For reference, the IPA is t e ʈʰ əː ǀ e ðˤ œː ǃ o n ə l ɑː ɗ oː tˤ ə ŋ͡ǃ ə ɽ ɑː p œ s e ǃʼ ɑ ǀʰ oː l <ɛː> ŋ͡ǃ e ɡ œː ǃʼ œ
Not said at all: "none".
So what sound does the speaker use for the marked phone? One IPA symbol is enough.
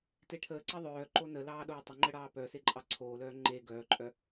œː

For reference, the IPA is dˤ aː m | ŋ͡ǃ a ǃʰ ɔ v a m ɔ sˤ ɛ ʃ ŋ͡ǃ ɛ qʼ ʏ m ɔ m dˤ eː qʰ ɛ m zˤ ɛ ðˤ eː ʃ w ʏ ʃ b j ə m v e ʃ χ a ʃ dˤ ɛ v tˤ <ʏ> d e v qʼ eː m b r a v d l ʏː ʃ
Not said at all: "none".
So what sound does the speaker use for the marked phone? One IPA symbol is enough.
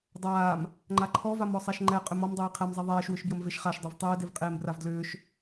ʏː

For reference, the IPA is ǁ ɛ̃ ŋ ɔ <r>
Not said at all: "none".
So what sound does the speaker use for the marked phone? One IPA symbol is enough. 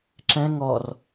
r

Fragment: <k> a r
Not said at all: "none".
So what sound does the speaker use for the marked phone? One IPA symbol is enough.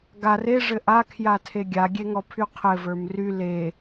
ɡ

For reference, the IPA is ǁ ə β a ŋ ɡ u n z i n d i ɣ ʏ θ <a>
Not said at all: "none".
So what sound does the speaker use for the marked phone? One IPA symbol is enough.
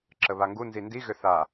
a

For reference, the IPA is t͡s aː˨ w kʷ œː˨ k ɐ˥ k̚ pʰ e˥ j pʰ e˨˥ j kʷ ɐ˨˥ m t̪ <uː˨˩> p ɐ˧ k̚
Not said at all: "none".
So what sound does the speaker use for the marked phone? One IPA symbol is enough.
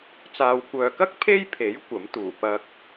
uː˨˩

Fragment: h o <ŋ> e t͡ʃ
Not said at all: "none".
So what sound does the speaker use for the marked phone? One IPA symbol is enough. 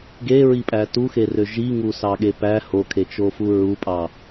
kʰ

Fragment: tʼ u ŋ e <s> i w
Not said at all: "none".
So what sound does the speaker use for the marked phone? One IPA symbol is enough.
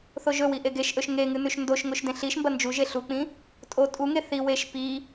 θ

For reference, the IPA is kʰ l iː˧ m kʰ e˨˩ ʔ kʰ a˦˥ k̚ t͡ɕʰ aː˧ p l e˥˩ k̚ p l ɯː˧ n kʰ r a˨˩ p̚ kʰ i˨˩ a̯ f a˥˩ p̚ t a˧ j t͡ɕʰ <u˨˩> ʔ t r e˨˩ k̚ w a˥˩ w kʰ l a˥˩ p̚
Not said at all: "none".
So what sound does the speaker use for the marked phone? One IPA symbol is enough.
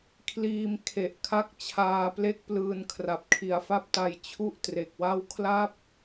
u˥˩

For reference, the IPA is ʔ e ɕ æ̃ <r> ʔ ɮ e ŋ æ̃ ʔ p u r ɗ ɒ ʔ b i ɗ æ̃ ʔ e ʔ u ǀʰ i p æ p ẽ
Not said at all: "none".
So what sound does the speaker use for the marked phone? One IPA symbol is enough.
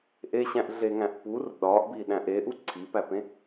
none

